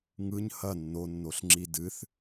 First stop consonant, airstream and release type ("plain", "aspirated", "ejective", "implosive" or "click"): click